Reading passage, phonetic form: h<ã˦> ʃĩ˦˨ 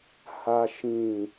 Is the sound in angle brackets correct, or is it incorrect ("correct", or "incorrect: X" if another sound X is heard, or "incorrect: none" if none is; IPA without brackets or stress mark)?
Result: incorrect: a˦